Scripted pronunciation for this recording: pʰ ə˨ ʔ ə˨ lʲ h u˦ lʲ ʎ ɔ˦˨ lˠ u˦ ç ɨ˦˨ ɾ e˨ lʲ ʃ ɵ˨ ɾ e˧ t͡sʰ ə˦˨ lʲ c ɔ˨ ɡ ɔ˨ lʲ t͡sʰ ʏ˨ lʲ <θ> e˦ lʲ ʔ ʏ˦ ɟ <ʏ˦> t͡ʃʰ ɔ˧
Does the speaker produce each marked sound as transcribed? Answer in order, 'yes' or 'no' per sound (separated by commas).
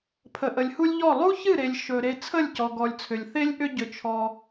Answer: yes, no